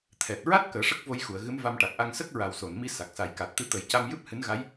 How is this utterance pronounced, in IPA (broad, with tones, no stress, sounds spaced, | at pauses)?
t̪ʰ ɛ˨˩ t̚ ɹ a˦˥ t̚ k əː˨˩˦ ʂ ə˦˥ k̚ v o˧ j x u˨˩˨ ə̯ ɣ ɨ˧˥ m v a˧ m ʈ a˨˩ k̚ ʔ a˧ ŋ s ə˦˥ k̚ ɹ a˨˩ w s o˨˩˨ n m i˧ s a˨˩ k̚ s a˨˩ j k a˨˩ t̚ t̪ ɨ˧ t̪ ə˨˩˦ j c a˧ m j ɨ˦˥ p̚ h ɨ˧˥ n ɣ a˧˥ j